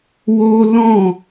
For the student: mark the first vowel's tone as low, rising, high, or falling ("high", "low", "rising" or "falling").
high